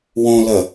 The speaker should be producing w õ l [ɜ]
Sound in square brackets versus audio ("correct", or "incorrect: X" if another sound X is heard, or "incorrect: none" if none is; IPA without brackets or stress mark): correct